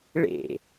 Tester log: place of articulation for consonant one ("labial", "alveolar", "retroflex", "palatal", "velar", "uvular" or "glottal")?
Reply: retroflex